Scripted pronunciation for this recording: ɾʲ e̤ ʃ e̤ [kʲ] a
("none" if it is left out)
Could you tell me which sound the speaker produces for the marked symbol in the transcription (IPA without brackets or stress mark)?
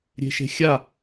xʲ